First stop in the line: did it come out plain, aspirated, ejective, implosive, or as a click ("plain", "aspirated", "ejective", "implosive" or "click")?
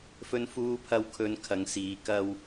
aspirated